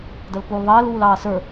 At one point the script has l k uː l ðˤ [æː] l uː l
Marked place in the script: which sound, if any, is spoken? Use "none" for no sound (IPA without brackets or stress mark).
ɐː